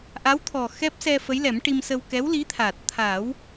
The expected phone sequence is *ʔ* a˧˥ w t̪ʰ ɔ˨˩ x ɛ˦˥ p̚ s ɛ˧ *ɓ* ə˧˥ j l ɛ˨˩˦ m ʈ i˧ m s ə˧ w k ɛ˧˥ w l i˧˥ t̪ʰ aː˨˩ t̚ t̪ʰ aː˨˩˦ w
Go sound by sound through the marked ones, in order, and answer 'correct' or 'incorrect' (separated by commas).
correct, incorrect